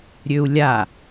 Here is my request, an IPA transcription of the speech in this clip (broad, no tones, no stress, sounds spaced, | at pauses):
ɾʲ ø u̯ lʲ a